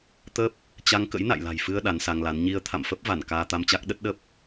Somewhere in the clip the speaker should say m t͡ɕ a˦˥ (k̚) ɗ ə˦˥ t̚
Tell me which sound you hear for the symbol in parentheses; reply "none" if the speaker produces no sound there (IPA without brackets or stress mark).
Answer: k̚